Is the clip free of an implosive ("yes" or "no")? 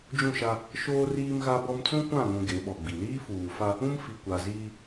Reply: no